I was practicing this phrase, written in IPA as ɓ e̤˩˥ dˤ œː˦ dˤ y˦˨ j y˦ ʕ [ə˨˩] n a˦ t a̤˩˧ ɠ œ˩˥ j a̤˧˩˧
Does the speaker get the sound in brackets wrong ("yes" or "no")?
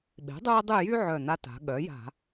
yes